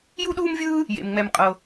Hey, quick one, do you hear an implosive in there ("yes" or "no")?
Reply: yes